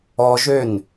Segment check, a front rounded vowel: present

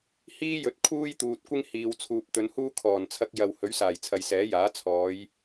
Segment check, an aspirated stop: present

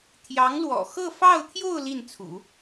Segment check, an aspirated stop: present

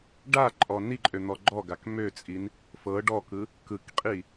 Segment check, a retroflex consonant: present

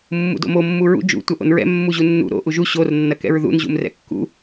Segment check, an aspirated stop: absent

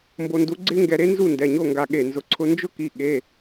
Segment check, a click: present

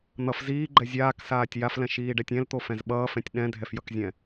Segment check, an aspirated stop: absent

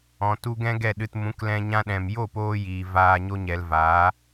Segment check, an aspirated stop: absent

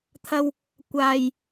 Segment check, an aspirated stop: present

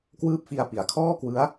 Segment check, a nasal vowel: absent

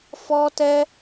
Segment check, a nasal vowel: absent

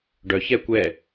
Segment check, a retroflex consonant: present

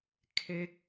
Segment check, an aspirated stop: present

